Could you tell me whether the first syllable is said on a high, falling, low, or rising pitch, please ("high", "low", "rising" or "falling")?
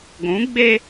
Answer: rising